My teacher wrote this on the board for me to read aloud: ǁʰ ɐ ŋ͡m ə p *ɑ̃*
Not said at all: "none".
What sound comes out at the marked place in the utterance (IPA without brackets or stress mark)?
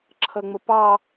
ɑ